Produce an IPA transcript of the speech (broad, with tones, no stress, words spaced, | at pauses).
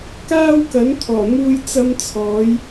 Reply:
kaː˧w kɐ˨˥nt̪ʰɔː˨˩n̪uː˧j t͡sɐ˧mt͡sʰɔː˨˧j